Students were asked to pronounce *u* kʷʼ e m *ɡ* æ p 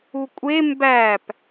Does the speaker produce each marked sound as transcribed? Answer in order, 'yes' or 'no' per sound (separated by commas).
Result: yes, no